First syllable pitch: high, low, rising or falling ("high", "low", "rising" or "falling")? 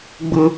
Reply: high